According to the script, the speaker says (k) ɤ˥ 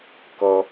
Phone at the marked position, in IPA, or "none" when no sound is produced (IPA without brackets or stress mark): k